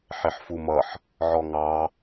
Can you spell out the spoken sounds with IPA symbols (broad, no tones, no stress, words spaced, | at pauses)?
ħɪħfumʌħ | ʕɔŋɑ